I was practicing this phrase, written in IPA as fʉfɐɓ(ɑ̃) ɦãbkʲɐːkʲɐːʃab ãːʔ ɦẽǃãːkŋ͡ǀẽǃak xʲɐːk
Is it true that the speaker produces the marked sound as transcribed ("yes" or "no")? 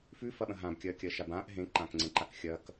no